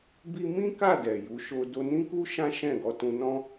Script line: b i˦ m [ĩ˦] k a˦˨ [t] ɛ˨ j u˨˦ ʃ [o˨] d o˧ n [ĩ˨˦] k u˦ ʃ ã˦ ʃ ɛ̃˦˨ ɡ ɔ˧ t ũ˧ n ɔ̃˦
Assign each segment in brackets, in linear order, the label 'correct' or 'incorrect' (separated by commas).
correct, incorrect, incorrect, incorrect